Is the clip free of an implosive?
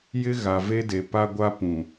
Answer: yes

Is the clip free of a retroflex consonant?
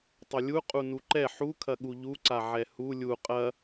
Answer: yes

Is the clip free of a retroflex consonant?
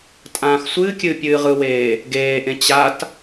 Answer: yes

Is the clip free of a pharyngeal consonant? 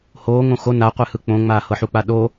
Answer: no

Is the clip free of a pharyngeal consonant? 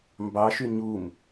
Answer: yes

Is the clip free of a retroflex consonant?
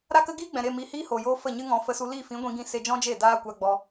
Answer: yes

